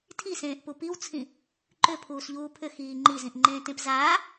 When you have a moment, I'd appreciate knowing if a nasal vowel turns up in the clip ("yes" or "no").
yes